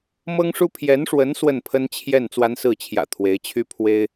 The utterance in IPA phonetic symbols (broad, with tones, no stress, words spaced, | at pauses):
mɤ˥ŋʂu˥ pʰjɛ˧˥nʂwə˧˥n swə˥˩npʰə˥nt͡ɕʰjɛ˥˩n t͡swa˥nsɹ̩˥˩t͡ɕʰjä̰˨˩ t̪ʰwe˧˥ɪ̯t͡ɕʰy˥ pʰwe˥ɪ̯